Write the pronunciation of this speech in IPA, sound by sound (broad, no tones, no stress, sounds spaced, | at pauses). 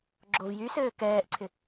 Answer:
ɡ͡ǁ o v j y s ɘː k ɛː ʔ ǀʰ ɪ